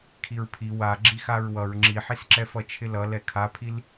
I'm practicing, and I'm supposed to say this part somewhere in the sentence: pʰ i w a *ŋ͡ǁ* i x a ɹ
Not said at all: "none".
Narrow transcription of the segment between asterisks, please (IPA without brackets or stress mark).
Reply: ɡ͡ǁ